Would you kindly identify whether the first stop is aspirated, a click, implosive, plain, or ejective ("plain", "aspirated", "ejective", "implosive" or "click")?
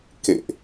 plain